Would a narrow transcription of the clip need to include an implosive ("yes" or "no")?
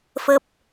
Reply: no